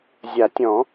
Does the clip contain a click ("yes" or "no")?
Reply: no